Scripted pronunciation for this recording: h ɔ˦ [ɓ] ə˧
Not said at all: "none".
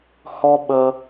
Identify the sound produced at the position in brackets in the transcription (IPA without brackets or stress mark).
ɓ